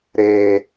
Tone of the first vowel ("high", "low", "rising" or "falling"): low